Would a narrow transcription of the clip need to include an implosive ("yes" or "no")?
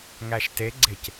no